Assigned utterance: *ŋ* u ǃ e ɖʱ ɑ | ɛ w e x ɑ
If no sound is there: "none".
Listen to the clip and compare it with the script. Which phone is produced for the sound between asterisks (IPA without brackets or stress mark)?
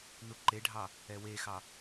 n